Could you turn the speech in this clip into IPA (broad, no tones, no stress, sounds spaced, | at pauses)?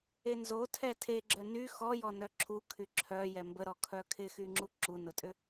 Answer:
e n z o tʰ ɛ tʰ e ɡ͡ǁ œ n y x ɔ j ɔ n œ ǁʰ u kʰ y ǁʰ œ j ɛ m b ə ɾ ɔ kʰ œ kʰ ɪ x y ŋ͡ǁ u ǁ u n ʊ tʼ ʏ